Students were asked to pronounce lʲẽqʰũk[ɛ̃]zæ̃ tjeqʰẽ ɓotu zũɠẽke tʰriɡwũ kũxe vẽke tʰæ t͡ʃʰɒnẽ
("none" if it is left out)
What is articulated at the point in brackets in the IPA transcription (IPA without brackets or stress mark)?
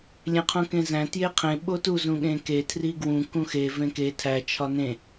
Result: ẽ